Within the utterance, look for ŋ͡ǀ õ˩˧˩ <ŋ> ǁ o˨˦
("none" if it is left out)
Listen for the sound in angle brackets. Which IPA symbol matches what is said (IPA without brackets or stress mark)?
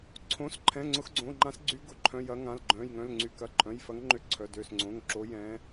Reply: ŋ